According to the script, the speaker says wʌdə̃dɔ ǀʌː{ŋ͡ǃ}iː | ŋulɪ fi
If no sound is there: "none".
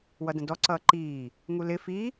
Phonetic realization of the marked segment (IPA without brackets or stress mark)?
ǃ